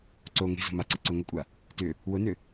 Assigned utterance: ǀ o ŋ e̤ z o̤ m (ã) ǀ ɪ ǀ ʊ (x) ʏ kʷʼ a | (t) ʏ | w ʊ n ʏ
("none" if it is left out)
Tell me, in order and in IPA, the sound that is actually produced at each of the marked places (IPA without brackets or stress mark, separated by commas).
a, ŋ, t